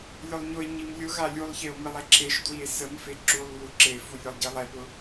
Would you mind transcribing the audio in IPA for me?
lʲʊlˠɲʊe̯ɲim lʲʊ ɣalʲulˠçeo̯ milˠɛǁeʃdwie̯ səmfe ǁulˠ βuǁefu lʲʊlˠɟilˠɛpʊ

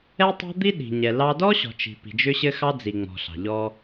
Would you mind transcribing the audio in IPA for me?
ɛ˦tˤɑ̤˦ d̪i˦ ɗi̤˨ɲɛ˨ lɑ˦ dɔ˦ɕɔ̤˨ t͡ʃi̤˨pi̤˨d͡ʒʏ˦ɕɘ˦ xɑ˦d͡zi˨ ŋ͡mɔ̤˨ɬɑ̤˨ ʎɔ˦

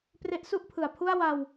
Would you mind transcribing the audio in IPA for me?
pre˦˥ʔsu˥˩ʔpʰɯ˩˦a̯pʰu˥˩a̯ wa˧w

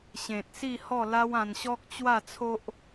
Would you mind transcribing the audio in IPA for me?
ɕẽ˨t̚ si˥˧hɔ˥˧ la˦wã˧nɕɔ˦k̚ t͡ɕwa˥˧t͡sʰo˦ʔ

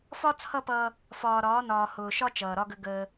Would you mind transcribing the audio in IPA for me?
fɒ˦ t͡sʰʌ˦pʌː˦ | fɒː˨ɾɒː˨˦nɒː˨ hʊː˨ʃɒ˦ t͡ʃʌː˨ɾɒ˦ɡə˦ ɡəː˦

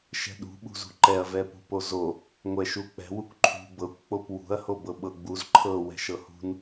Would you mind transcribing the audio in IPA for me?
ʃɛ̤ɗṳɓṳzṳ ǃɛɐ̯ vɛpṳpozo | ŋʷɛʃuk͡pɛ̤w ukʷǃʰṳ bɤkʷk͡pop wṳɐ̯ho bɤɓɤɡ͡buz ǃʰɤ wɛ̤ʃɤhṳn

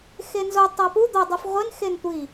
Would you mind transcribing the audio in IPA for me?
xenzo tˤæpu d̪ɒ dˤofʁʷen xentʷi

